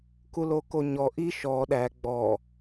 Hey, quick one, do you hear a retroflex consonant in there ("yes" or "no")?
no